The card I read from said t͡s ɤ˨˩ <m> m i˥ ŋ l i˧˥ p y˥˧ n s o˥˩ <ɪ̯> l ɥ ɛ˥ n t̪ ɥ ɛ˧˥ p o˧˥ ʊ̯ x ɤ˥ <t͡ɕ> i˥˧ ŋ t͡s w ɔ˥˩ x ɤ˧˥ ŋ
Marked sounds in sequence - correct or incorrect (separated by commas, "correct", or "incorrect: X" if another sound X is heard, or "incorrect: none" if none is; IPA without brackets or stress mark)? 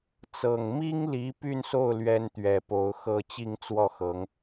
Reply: incorrect: ŋ, incorrect: ʊ̯, correct